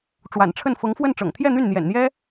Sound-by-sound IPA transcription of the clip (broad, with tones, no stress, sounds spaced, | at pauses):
ʈ͡ʂ w a̰˨˩ n ʈ͡ʂʰ ə˥˩ n f ɤ˧˥ ŋ f w ə˥˩ n ʈ͡ʂ ɤ̰˨˩ ŋ t̪ʰ j ɛ˥˧ n̪ y˥˩ n n̪ j ɛ̰˨˩ n n̪ j ɛ˥